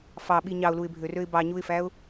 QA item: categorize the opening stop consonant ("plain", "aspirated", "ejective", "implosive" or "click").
implosive